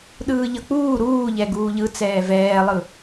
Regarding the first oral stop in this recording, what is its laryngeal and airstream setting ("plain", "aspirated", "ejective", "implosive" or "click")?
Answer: implosive